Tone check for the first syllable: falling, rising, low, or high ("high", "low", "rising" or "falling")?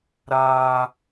high